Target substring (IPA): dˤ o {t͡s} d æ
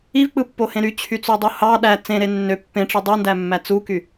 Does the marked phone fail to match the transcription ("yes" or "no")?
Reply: yes